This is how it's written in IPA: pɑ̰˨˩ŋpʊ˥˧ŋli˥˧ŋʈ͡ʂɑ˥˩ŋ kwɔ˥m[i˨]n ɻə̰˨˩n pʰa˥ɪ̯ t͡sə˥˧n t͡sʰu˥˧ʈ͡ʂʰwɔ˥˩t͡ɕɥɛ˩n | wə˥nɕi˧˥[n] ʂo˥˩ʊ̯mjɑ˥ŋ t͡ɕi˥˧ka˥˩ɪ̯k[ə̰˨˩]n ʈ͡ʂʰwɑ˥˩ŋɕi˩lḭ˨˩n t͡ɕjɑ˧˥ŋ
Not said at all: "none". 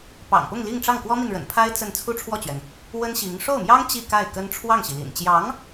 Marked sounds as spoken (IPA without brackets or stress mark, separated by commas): i˨, ŋ, ə˥